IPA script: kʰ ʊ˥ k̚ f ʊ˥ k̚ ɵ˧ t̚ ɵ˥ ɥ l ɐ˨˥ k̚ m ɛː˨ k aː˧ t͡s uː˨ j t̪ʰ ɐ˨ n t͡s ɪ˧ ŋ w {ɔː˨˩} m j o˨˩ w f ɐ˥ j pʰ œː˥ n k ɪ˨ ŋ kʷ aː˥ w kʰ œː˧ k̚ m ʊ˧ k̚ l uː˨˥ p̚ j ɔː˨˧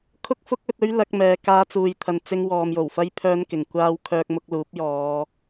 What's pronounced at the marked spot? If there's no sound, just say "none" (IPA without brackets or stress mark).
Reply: ɔː˨